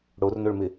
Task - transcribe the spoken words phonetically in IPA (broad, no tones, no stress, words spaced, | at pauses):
ɽornoɭmɪ